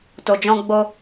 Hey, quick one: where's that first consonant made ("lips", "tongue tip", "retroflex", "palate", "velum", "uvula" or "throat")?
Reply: tongue tip